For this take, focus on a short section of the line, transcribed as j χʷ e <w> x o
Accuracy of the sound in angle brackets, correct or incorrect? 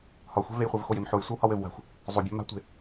incorrect